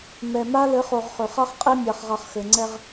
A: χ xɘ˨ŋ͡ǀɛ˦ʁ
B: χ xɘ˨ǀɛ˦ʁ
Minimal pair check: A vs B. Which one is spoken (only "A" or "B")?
A